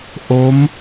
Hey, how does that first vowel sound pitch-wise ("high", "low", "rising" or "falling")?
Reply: rising